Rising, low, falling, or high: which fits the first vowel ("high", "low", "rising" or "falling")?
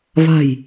low